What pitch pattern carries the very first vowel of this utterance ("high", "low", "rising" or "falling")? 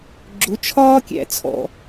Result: rising